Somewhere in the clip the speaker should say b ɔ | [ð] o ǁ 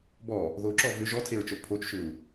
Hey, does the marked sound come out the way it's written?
yes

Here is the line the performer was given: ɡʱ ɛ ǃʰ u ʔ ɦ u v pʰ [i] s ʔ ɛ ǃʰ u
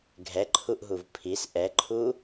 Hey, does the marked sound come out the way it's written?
yes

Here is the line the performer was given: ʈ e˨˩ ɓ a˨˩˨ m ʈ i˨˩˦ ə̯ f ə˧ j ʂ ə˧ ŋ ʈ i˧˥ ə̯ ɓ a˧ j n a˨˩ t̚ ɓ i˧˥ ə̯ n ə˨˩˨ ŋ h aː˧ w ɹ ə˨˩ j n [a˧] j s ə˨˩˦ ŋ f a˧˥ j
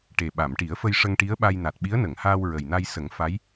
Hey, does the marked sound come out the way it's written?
yes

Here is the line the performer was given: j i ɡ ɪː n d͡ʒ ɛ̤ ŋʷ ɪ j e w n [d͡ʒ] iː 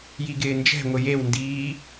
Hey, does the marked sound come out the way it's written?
no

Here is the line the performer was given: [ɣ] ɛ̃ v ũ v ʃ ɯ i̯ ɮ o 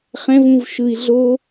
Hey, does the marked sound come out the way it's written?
no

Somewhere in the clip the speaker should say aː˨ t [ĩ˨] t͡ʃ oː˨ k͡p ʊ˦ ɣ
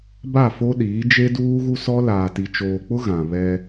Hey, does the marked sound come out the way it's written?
no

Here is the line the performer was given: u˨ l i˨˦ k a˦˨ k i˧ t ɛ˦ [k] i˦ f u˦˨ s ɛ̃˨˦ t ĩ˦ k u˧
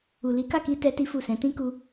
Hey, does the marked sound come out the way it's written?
no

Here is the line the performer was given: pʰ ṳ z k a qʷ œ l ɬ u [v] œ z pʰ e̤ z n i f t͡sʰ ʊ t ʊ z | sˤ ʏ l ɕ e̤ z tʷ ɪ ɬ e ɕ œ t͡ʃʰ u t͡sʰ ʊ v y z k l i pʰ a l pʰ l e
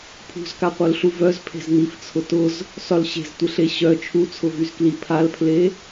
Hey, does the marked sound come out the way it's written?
yes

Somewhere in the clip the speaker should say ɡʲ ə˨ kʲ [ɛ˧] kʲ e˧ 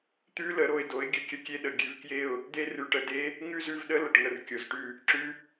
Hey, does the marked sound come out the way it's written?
no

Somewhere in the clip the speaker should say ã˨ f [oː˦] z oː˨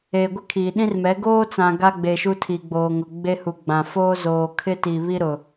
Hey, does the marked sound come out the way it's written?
yes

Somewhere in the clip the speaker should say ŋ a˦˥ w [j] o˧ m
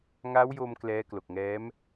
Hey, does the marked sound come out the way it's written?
yes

